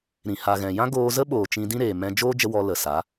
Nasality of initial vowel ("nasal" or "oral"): nasal